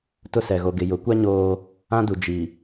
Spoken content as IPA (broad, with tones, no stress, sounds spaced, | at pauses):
t ʊ˦ s ɛ˨ ɣ o˨ ɡ ɪ˨ j ʊ˨˦ kʷ a˦ ɲ oː˦ | ã˦ d u˨ d͡ʒ i˨